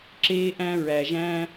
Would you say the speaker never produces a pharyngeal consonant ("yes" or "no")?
yes